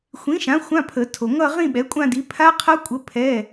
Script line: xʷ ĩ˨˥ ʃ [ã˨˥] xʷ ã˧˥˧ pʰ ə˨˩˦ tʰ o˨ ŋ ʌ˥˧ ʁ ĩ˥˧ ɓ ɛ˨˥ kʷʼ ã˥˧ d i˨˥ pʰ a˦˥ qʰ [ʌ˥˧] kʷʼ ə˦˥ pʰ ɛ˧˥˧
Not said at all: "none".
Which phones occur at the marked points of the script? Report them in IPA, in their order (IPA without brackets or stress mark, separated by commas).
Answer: ã˨˥, ʌ˦˥